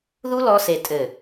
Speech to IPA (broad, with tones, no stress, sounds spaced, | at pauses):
ð u˦ l ɔ˧ s e˨ tʼ ɘ˨